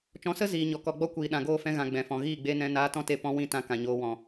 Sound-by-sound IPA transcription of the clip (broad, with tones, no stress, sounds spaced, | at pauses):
t͡ʃ ɔ̃˨˦ s ə˦ z iː˨ ɲ ɔ˨ k ɔ˨ ɡ͡b ɔ˦ kʷ iː˨ ɗ ã˨ ɡ oː˦˨ f ɛ̃˧ ɣ ã˨ ɡ͡b ɛ̃˨ f ɔ̃˨ ɣ iː˦˨ ɡ͡b e˧ n ɛ̃˧ n aː˧ t ɔ̃˦ t e˧ p ɔ̃˧ w ĩ˦˨ t ã˧ k ã˨ ɲ oː˧ w ɔ̃˨